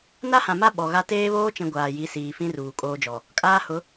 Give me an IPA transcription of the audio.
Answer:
n a˦ h ã˨ m a˦ ɓ ɔ˨ ɣ a˦ t eː˦ β oː˦ t͡ʃ ĩ˨ ɡʷ aː˨ j i˨˦ s iː˨ f ĩ˦ r uː˨ kʼ oː˦ d͡ʒ ɔ˨ | kʼ aː˦ h ʊ˨˦

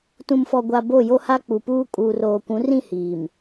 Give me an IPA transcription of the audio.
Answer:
t ũ˨ m f ɔ˨ ɡʷ a˨ b o˦˨ j o˦ h a˦ k͡p u˨ p uː˦ kʼ uː˨ r oː˨ kʷ ũ˨˦ r ĩ˦˨ h iː˨ m

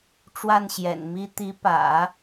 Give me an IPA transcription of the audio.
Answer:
ʈ͡ʂ w a˥˩ n ɕ j ɛ̰˨˩ n m i˥ t̪ i˧˥ p ä̰˨˩˦

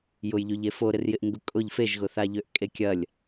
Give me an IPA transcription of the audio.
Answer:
j ʊ j ʎ y ʎ e f o ɾ ɪ r j ɪ ʔ ŋ ɡ ʊ kʼ ʊ ʎ f e ʒ ɣ ʊ θ a ʎ ø ʔ kʼ e kʲ ɐ lʲ

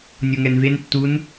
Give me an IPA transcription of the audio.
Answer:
nʲ o ŋ ɛ n v e n tː u n

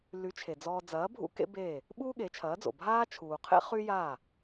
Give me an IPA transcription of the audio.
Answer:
l y˩˥ t͡ʃʰ e˩ d͡z ɔː˧ d͡z ɐː˩˥ bʱ ṵ˥ k ḛ˥ b eː˥˩ | ɓ uː˥ ɠ e˩˥ t͡ʃʰ ɐː˩˥ d͡z o̰˩ bʱ aː˥ t͡ʃʰ uː˩ qʰ ḛ˥ χ y˥ j aː˥˩

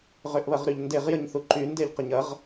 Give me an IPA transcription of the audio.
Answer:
ʁ ø ʔ β ɐ ʁ ɾ y ʎ n d e ʁ j ə ɲ θ u ǃ y n d e ʎ q ə ɲ ɐ ʁ

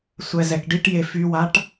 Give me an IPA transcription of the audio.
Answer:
sʷ ɛ z ɛ k ɖ i ʈ j e f y w a ʈ

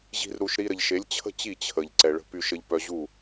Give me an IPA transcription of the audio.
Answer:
ʑ i̤˦ r ɾ u˧ ʃ ɾ i˧ ɾ ə˨ ʎ ʃ e˨˦ lʲ t͡ɕʰ ə̤˦ t͡ɕ i˦˨ t͡ɕʰ ə˨ ʎ ǀ ɛ˨ ɭ ə̤˧ p y˧ ʃ ə˧ ʎ p œ˧ ʑ u˦˨

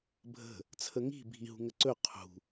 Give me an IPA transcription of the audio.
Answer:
bʱ ə̤ | t͡sʰ ə ŋ i̤ bʱ i ɦ ṳ ŋ ə ǀ ɵ qʰ ṳ

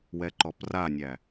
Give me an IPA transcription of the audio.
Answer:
w ɛ ǃ ɔ p r a nʲ æ

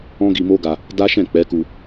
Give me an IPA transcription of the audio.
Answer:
ɔ̃˦ ɡ i˧ m o˦ ɡ a˧ | d a˦ ʃ ɛ̃˦˨ k͡p ɛ˨˦ k u˧

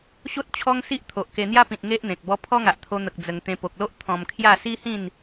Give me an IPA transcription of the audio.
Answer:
ɕ o˦ t̚ t͡ɕʰ ɔ˦ ŋ s i˦ ʔ t̪ʰ o˨ ʔ k e˧ n̪ j a˦ p ĩ˨ t̚ ŋ e˦ ʔ n̪ ẽ˨ k̚ b ɔ˦ pʰ ɔ˦ ŋ a˨ ʔ t̪ʰ o˧ n̪ ə˨ k̚ d͡z ə˧ ŋ t̪ ẽ˧ p o˨ k̚ l o˦ ʔ t̪ʰ ɔ̃˧ m kʰ j a˥˧ s i˦ h ĩ˥˧ n

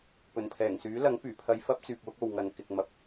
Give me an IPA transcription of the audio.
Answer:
p ɵ˨˩ n pʰ ɛː˨˩ ŋ s yː˨˥ l ɐ˨˥ ŋ p yː˨˩ pʰ ɐ˧ j f ɐ˥ p̚ t͡s yː˨ p̚ w ʊ˥ k̚ o˨ w ŋ ɐ˨ n k ɪ˨ k̚ m ɐ˨˥ p̚

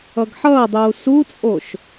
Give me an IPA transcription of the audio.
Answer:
ʌ ɡ ħ ʌː dˤ uː s u t͡sʼ o ʃ

